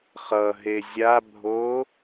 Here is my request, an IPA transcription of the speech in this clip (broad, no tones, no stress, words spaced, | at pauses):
χʌɦe zʲabʱo